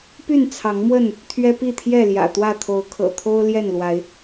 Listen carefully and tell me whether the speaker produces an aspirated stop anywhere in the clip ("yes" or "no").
yes